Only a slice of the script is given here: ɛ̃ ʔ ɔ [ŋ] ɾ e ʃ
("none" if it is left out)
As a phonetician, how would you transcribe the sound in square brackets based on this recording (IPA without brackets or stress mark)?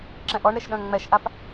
ɳ